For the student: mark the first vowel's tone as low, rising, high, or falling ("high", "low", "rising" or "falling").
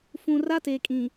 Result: low